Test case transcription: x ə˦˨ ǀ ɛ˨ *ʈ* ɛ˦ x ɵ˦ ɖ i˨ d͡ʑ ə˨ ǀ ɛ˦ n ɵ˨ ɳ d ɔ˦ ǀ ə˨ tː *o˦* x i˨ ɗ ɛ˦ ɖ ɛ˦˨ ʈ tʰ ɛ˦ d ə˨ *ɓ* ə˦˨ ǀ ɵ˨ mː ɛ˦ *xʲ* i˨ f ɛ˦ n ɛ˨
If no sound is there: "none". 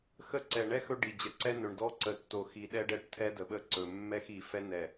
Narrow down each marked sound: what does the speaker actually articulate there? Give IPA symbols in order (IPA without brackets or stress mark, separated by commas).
ɳ, o˨, ɓ, x